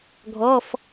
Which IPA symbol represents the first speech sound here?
ɡʱ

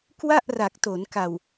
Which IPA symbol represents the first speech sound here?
k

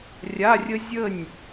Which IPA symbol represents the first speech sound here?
rʲ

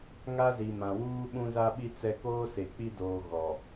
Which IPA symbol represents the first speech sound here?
ŋ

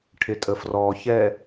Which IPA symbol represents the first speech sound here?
ʈʰ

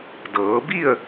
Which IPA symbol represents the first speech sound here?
d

